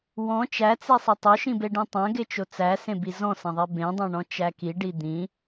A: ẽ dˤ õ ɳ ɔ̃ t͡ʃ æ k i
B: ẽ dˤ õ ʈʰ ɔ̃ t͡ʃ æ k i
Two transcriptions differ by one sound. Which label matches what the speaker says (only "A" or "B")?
A